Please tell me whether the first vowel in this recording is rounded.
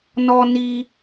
yes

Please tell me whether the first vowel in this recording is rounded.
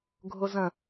yes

